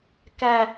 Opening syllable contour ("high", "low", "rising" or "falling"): high